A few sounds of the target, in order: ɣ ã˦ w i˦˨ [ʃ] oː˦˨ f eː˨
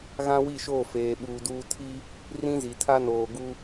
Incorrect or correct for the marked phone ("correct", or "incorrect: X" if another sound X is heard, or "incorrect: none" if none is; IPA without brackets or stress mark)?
correct